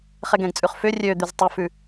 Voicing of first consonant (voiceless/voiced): voiceless